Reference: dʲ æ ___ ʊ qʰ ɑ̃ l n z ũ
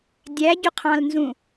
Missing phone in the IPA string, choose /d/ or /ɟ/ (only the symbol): ɟ